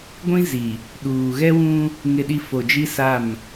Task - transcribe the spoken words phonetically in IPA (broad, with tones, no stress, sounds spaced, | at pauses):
ɡʷ ĩ˦ z i˨ | ɗ uː˨ ɣ ɛ˦ w ũ˦ | ŋ ɪ˨ ɗ i˨ f o˨ d͡ʒ i˦ s a˦˨ m